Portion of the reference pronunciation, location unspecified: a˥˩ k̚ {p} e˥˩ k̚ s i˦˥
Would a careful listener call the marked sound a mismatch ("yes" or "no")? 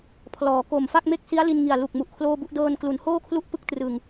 yes